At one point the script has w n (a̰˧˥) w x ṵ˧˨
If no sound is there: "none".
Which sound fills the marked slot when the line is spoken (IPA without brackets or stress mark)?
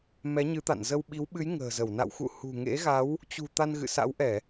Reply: a̰˧˨